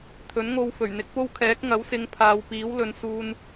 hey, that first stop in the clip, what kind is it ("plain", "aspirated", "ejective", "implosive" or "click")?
aspirated